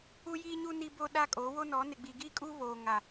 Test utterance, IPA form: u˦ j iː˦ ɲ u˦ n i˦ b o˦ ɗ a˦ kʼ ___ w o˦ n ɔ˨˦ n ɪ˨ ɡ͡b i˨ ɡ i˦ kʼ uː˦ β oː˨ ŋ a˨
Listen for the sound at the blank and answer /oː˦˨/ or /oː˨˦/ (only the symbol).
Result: oː˨˦